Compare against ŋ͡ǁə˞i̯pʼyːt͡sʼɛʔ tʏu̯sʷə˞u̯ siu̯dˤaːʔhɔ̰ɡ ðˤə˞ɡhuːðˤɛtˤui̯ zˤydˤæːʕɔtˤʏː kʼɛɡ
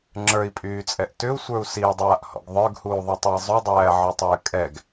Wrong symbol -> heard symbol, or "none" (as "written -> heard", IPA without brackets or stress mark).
none